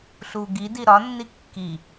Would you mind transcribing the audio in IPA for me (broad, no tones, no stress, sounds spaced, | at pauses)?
ɬ u ɡ i d i ɾ ɒ nː i kː i